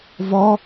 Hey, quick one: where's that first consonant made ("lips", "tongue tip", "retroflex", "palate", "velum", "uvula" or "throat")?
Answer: lips